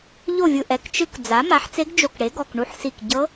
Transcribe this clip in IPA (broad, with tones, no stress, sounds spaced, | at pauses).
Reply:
ʎ o˥˨ vʲ ɯ˧ ʔ ɛ˩˧˩ k t͡ʃ ɯ˧ k d͡z a˩˥ m a˩˥ ħ t͡s e˧˥ ɡ d͡ʒ o˧˩ k ɽ e˩˥ ɡ ɔ˩˧˩ k ɳ u˧˥ ħ s i˧˩ k ɟ ɤ˧˥